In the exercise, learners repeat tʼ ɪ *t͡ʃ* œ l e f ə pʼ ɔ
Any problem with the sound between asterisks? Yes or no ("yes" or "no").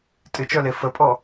no